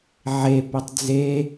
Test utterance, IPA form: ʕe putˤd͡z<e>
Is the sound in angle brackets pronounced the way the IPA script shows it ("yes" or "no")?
yes